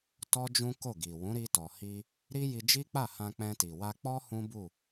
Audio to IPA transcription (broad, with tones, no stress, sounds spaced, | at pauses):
t ɔ˦ d͡ʒ ũ˦ k o˦˨ ɡ i˨ w ũ˨˦ ɾ i˧ t ɔ˨ h i˧ | ɾ i˦ j i˧ d͡ʒ i˦ k͡p a˦˨ h ã˧ k͡p ɛ̃˧ t i˨ w a˧ k͡p ɔ˦ h ũ˦ b u˦˨